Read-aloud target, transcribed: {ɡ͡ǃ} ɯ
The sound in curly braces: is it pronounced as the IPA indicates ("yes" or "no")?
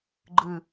yes